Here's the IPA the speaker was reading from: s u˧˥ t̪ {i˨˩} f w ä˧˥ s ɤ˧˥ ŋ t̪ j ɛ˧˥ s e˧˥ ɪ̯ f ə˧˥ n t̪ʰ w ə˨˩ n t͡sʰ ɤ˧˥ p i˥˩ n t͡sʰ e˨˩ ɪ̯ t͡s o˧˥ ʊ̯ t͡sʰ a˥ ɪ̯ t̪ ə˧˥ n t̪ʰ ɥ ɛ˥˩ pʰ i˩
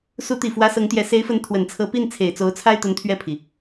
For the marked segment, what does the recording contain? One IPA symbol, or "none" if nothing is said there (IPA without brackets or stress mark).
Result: i˨˩